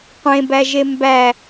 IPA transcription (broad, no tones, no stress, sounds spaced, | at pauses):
qʷ ẽ b æ ʒ e m b æ